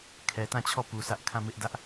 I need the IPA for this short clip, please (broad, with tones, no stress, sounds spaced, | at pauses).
kʰ ɛ˨ t ã˦˨ t͡ɕʰ ɔ˦˨ p u˨ sʰ ä˦ ʔ kʰ ã˦˨ m ɪ˦ ʔ d ä˦ ʔ